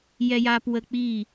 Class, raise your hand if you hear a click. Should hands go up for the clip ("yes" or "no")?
no